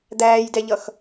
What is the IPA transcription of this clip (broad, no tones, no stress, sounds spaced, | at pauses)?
d̪ æː j d ɛ ʎ ʌ x